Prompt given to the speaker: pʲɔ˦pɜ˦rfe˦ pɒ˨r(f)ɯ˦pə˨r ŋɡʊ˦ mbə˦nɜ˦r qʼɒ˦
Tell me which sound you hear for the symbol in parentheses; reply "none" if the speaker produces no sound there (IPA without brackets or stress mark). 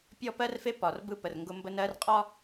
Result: b